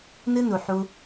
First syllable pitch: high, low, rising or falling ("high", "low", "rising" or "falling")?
high